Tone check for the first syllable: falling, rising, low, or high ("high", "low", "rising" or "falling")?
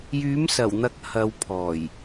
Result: rising